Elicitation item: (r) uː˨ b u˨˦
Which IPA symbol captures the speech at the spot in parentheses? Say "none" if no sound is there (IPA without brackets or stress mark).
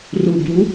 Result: r